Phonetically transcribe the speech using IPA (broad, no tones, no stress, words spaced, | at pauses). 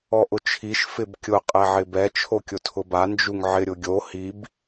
ɔʔʊt͡ʃʰiʃ fɪbkʲʊ qʼɛʕɪbɛ t͡ʃʰokʲʊtʰʊba nd͡ʒuŋʕɪ ɾʲʊɡʲo hib